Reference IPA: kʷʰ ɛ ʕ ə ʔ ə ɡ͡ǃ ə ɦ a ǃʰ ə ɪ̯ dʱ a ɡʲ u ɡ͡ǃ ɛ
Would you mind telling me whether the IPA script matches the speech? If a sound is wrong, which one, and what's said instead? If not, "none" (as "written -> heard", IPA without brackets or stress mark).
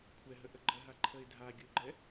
ʕ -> ɦ